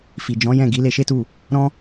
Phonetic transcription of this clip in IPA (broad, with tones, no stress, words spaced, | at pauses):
fi˨d͡ʒɔ̃˨˦jɛ̃˦˨ ɡi˨˦ le˧ʃe˦tu˦˨ | ɾɔ̃˦